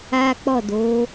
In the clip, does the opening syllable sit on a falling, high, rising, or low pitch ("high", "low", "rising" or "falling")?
high